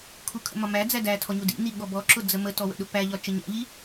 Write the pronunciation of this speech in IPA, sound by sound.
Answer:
kʰ u kʰ ə̰ m ɒ m æ d͡z æ d æ tʰ ɔ ɲ u d ḭ n i ɠ ɔ b ɔ ǁ ʊ d͡z ə m ə t ɔ w ə̰ ɗ ʊ p æ ʎ ɒ t͡ʃ ə ɲ æ̰ ʎ i

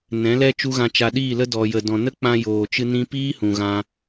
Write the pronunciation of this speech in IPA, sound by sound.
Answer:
n ɛ̃˨˦ l ɛ˦ t͡ʃ u˦ ɣ ã˧ t͡ʃ a˧ ɗ iː˦˨ l ə˦ d ɔ˨ j ə˨ d ɔ̃˨ n ə˦ k͡p ã˧ j oː˨ t͡ʃ ɨ˧ n ĩ˧ p iː˦ h ũ˨ ɣ ã˧

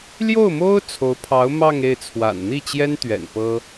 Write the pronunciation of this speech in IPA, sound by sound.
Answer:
l j o˥˩ ʊ̯ m o˥ ʊ̯ t͡sʰ o˧˥ ʊ̯ pʰ ɑ˧˥ ʊ̯ m ɑ˥˧ ŋ e˥˩ ɪ̯ t͡sʰ w a̰˨˩ n n̪ i˥˩ t͡ɕ j ɛ˥ n t̪ ɥ ɛ̰˨˩ n p ɤ˥

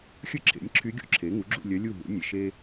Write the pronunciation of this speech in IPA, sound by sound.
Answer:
xʲ ɵ˥ ǁʰ ḛ˩˥ nʲ ǁʰ y˧˥ ɡʲ ṵ˧˥ ǁʰ e˩˥ ŋ u˩˥ ɡ͡ǁ ṵ˥˨ lʲ œ˧˥ lʲ u˥˨ ɦ ṵ˩˥ nʲ e˨˩ ʃ e˥

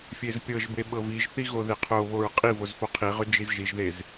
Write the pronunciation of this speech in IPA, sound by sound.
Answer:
fʲ e z pʲ ɤ ʒ b e ɓ ɤ v i ʒ θ i ɣ o ð e qʰ o β o ɹ qʼ i v o z f o qʰ i ʁ ʏ d͡ʒ i z ʒ i ʒ ð e z

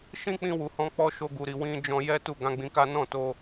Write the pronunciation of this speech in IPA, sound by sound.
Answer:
ʃ ĩ˦ k͡p ĩ˧ w u˨ h ɔ̃˨˦ k͡p ɔ˧ ʃ o˧ ɡ u˨ ɾ i˨ w ĩ˧ d͡ʒ ɔ̃˧ j ɛ˦ t u˦˨ ɡ ã˨˦ ɡ͡b ĩ˧ k a˦ n ɔ̃˦˨ t o˧

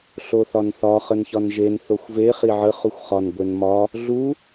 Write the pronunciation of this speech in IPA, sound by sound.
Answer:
ɬ o θ ɒ n θ ɒ χ ə n ç ɒ n ʒ e n θ o xʷ v e χ i ʕ ə χ u xʷ χ ɒ n ɡʷ e n m ɒ | ɮ u

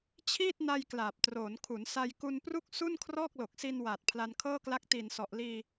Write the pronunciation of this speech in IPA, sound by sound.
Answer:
t͡ɕʰ iː˥˩ t̚ n a˧ j k l aː˨˩ p̚ t r oː˩˦ n kʰ u˩˦ n s a˧ j k u˧ n p r u˥˩ k̚ s u˥˩ n kʰ r ɔː˥˩ k̚ l o˨˩ k̚ s i˧ n w aː˨˩ t̚ pʰ l a˧ n kʰ ɤː˥˩ k l a˦˥ k̚ t i˨˩ n s ɔ˨˩ ʔ l iː˧

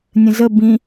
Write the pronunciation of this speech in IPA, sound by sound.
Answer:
nʲ ə̃ z ə b ĩ

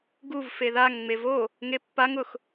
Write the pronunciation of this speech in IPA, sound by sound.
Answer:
ɡ u v f e ð a ŋ ŋ͡m e v o | ŋ e pː a ŋ ʊ x

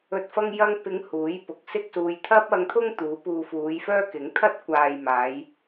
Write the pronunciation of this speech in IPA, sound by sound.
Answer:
ɵ˨ t̚ f ɐ˧ ŋ j ɐ˧ ŋ p ɪ˨˧ ŋ h uː˨˥ j p ʊ˨˥ k̚ s ɪ˥ k̚ s uː˧ j t̪ʰ ɐ˥ p̚ ɐ˧ ŋ t̪ʰ ʊ˥ ŋ t̪ uː˨˥ p uː˨ f uː˨˧ j f œː˥ k ɪ˨˥ ŋ t̪ʰ ɐ˥ t̚ kʷ aː˨ j m aː˨˧ j

